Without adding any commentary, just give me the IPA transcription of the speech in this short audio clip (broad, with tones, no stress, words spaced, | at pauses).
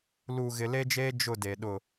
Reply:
lu˨ ɣɪ˨le˦d͡ʒeː˦ d͡ʒʊ˦˨de˨ ɗʊ˨